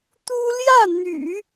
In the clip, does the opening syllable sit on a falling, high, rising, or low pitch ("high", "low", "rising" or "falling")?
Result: high